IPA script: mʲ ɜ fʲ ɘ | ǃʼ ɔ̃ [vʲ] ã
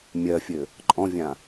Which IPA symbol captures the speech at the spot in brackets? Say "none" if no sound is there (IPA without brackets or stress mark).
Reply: vʲ